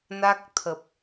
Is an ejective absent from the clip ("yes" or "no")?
yes